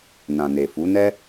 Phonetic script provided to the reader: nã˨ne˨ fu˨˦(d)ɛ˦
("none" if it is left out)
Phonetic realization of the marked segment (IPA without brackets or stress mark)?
n